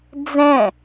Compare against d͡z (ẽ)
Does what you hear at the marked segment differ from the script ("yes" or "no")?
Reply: yes